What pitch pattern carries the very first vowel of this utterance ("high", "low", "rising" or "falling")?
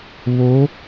rising